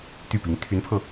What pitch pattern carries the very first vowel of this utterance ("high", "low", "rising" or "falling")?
falling